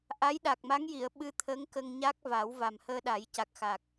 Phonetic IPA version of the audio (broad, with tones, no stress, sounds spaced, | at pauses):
ʔ a˧˥ j ɗ a˨˩ k̚ m a˧˥ ŋ j i˨˩˨ ə̯ ɓ ɨ˧ t̪ʰ əː˧˥ ŋ k ə˧ ŋ ɲ a˦˥ k̚ v a˨˩˦ w v a˨˩ m h əː˧ ɗ a˨˩˦ j c a˨˩ k̚ x a˨˩ k̚